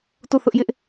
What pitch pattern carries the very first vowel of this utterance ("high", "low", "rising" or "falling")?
falling